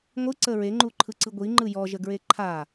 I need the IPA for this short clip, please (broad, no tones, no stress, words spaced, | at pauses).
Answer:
ŋʷɯǀə ɹeŋ͡ǃuǃʰɯǀɯ ɡʷiŋ͡ǃɯ jɔʒəɡɹe ǃʰa